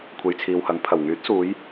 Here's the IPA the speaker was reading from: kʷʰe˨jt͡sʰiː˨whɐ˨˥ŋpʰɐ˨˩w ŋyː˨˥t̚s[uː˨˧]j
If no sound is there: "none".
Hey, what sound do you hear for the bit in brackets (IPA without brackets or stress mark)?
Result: uː˨˧